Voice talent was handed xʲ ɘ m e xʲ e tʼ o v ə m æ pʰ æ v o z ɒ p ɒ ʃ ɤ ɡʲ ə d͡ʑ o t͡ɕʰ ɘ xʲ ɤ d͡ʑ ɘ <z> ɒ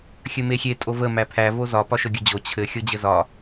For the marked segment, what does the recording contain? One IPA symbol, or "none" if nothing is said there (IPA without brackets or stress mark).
z